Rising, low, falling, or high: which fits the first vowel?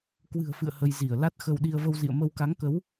low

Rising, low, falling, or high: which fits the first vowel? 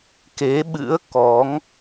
rising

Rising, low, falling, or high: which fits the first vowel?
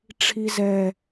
low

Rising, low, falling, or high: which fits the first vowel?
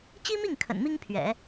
high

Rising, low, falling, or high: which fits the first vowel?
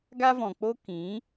high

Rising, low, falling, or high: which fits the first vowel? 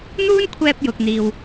high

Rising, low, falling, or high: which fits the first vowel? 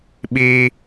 high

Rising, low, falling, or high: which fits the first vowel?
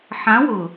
rising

